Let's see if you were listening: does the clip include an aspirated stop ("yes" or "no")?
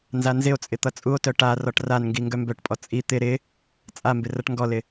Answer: no